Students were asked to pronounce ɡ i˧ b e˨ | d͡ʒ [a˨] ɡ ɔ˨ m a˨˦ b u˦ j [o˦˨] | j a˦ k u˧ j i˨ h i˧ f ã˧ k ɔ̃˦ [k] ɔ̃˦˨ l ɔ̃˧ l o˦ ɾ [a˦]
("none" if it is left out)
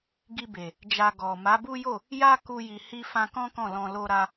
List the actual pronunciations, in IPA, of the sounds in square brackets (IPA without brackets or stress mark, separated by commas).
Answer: a˧, o˦˨, k, a˦